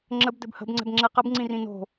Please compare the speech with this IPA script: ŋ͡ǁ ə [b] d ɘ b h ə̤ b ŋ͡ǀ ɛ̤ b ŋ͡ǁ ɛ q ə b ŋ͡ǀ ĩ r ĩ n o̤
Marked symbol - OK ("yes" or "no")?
yes